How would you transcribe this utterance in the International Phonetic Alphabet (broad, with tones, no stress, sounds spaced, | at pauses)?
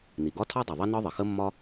n i˩ ɡ ɒ˥ tʰ ɔ˥ dˤ ɵ˩ ðˤ ʌ˥ n ɒ˥ ðˤ ə˩ x ə˥ mː ɒ˥